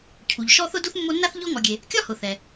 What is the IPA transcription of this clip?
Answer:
cʰ u˩ ʎ ʃ ɔ˥ θ ʊ˥ d u˥ θ mː o˦ nː a˥ θ ʎ ɔ˦ ŋ ɔ˨ ɡʲ e˨ | kʲ ɒ˦ h ʊ˩ θ ɛ˩

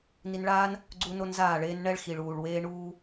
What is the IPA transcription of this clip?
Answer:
n i˧ n ɭ aː˦ n | ɡ͡ǀ u˦ n o˦ n z aː˦˨ ɭ eː˦ n ɳ ɛ˦ ɭ x i˨ ɭ uː˨ ɭ w eː˦ ɳ uː˦

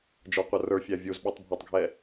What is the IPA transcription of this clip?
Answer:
d͡ʒ ɔ qʷ ʌ r ə˞ fʲ æ vʲ u z ɓ ɔ tˤ bʱ ɔ tˤ ɡʱ ɛ

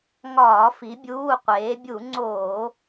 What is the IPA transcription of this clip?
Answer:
ŋ ɒː˧˩˧ f i˨˥ bʲ uː˧˥˧ qʷ eː˨˥ bʲ u˧˩˧ ŋ͡ǀ oː˧˩˧

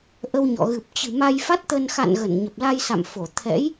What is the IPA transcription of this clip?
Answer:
ʔ ə˧ w ɲ ɔ̰˧˨ ɣ ɨ˨˩ p̚ t͡ɕ ɨ̤˨˩ m a˧ j f a˦˥ t̚ t̪ ə˧ n x a̰˧˨ n ɣ ə˧˩ n ɲ ə˨˩ p̚ l a˧ j s a̰˧˨ m f o˧˩ t̪ʰ ɛ̰˧˥ j

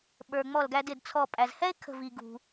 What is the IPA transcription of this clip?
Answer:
ɓ ə˞˩ ŋ͡m ɔ˧˩ l ɡ æ˧ d ɪ˧˩ d t͡sʰ ɔ˧˩ pʼ æ˩ z h ɛ˥ e̯ kʰ ə̤˧˩ v i˩ ɡ ṳ˩

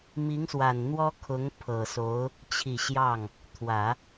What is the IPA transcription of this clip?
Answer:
m i˧˥ ŋ s w a˨˩ n n̪ w ɔ˥ kʰ ʊ˧˥ ŋ pʰ ɤ˨˩ s o˧˥ ʊ̯ | t͡ɕʰ i˨˩ ɕ j ɑ˥˩ ŋ | t̪ʰ w ä˨˩˦

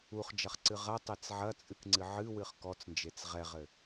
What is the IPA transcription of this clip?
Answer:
u χ d͡ʒ ɐ χ ǀ ɨ ʁ ɐ tˤ e t͡s ʕ ɐ t͡sʼ ɨ k ŋ͡ǀ ɨ ʕ ɨ w ɨ χ k ɔ t͡s n d͡ʒ e t͡s ʁ ɛ ʁ ɘ

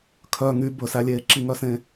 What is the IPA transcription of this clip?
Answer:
kʰ œ ŋ y b ɵ s æ lʲ eː ǁ i ŋ œ s ẽ

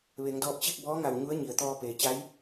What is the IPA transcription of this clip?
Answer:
ʋ e˩˧ ŋ d ɔː˧ p̚ t͡ɕ i˥˨ k̚ b ɔː˧˥ ŋ a˧˩ w ɲ u˧˥ ə̯ ɲ i˩ ə̯ t̪ ɔː˧ p eː˩ t͡ɕ a˧˥ j

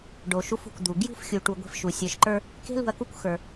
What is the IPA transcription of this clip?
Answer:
ɖ o˨ ʃ u˦ f ṳ˨ kʷ d̪ u˨ ɡ j ṳ˦ f xʲ u˨ ʈ u˨ ɡʷ e̤˦ f ʃ u˨ sʲ ə˞˨ ʃ ǃ ə˞˦ | k e̤˦ l ṳ˨ ɐ̯ k u˦ kʷ x ə˞˨

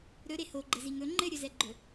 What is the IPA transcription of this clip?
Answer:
ɾ ɵ ɾ e h o ɡ͡ǃ ɘ z i ŋ ɵ ŋ͡ǃ ɘ ɾʲ ɵ z ɛ ɡ͡ǃ ɵ

